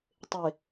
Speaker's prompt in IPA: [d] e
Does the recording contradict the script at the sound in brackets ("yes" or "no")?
yes